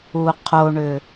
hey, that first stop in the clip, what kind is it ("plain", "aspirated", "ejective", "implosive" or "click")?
aspirated